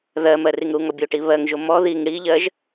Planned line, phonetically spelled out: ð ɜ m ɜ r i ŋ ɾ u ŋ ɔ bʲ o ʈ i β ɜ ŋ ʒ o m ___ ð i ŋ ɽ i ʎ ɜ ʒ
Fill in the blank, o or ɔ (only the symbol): ɔ